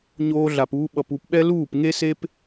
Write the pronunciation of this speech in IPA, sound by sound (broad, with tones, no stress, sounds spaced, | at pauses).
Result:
ɲ oː˦ ɮ a˧ p uː˦ ɓ ʌ˧ p u˧ p ɓ ɛ˦ l uː˦˨ p ŋ e˦ s e˦ p